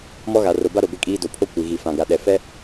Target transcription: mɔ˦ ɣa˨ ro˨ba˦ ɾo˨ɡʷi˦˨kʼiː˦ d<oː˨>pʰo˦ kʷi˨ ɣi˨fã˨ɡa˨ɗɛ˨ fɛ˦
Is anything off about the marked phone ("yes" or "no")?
yes